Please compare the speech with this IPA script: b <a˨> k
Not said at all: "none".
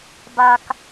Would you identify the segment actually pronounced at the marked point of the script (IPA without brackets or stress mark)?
a˨